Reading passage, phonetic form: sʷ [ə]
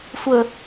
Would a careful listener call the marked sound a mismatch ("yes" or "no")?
no